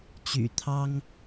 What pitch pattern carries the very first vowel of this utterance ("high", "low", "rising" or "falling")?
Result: low